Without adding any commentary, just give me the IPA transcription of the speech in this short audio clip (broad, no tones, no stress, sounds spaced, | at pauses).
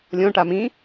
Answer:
lʲ õ ʈ a m ĩ